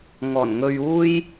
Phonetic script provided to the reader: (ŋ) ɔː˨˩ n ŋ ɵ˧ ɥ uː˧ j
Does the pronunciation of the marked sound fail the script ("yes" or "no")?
no